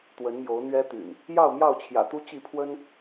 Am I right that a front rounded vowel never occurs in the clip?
no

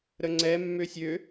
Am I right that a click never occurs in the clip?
no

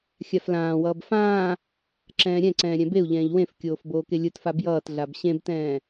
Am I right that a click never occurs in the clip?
no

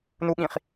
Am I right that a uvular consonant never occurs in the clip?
no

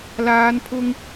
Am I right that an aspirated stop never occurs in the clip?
no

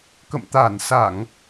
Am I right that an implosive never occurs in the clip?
yes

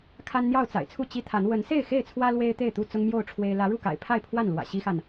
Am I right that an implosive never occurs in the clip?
yes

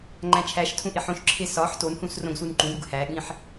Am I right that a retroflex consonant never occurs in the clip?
yes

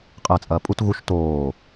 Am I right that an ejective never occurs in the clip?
no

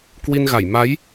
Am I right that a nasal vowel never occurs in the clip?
yes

